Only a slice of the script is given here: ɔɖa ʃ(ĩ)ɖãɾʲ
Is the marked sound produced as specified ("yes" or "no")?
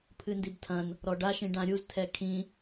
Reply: yes